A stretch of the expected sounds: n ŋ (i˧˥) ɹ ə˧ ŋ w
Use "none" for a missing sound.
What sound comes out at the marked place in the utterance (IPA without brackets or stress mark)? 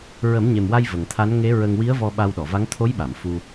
e˧˥